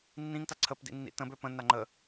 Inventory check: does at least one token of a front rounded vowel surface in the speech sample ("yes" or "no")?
yes